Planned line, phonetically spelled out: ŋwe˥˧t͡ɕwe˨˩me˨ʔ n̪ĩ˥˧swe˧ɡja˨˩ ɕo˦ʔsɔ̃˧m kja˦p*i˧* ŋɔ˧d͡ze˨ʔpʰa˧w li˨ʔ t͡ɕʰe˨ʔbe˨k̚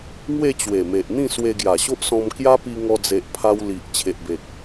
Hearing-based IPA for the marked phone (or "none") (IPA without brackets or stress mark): i˧